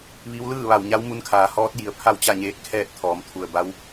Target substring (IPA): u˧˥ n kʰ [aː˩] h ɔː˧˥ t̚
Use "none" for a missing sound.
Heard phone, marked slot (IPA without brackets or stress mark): aː˩